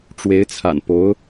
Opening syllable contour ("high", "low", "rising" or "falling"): rising